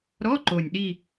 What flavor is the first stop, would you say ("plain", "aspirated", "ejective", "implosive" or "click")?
click